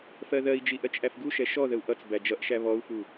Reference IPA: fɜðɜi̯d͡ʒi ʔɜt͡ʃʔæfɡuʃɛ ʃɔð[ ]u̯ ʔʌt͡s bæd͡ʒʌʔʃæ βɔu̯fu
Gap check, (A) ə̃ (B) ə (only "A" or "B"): B